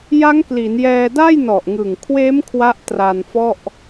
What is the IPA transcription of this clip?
j a˦˥ ŋ k l i˩˦ n j ɛː˧ d a˥˩ j n ɔ˨˩ ʔ ŋ ɯ˨˩ ŋ kʰ w eː˦˥ m kʰ w a˦˥ ʔ t r a˧ n f ɔ˥˩ ʔ

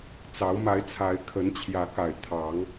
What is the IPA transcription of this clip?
t͡s ɑ˨˦ ʊ̯ m a˨˦ ɪ̯ t͡sʰ a˨˦ ɪ̯ kʰ ə˨˦ n t͡ɕʰ j ä˨˦ k a˨˩ ɪ̯ t̪ʰ ɑ˨˦ ŋ

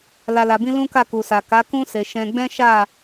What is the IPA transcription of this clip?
l a˨ l a˨ b ĩ˧ l ũ˦ k a˦˨ k u˨ s a˨ k a˨˦ k ũ˦ s e˧ ʃ ɛ̃˧ ɡ͡b ɛ̃˦ ʃ a˦˨

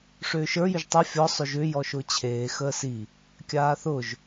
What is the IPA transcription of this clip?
ʂ ʏː ʃ ə˞ j ʏ ʒ tˤ a fʲ ɔ sˤ ʏ ʒ ʏː j ɔ ʃ ʊː t͡ɕʰ eː x əː s i | kʲ aː θ ʊ ʒ

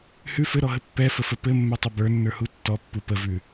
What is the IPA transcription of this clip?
h ʉ f ɘ ɾ ɔ ɦ ə pː ɛ f ə f ə p ɘ mː ɛ tˤ ə b ə˞ nː ə˞ h u tː ɔ pː u p ə v ʉ

